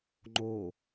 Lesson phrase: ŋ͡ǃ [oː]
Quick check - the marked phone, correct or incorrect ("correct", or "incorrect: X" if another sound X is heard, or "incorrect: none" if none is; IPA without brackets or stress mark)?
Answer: correct